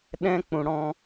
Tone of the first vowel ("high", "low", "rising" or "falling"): high